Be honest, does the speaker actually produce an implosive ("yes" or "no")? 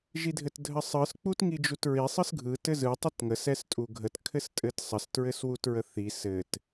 no